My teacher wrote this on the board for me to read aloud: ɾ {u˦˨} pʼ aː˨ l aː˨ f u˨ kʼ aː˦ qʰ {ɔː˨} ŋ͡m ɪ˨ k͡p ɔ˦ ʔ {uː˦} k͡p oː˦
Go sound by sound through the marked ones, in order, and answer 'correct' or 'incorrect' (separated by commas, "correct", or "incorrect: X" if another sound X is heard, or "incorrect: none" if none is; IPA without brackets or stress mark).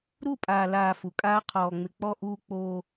correct, correct, correct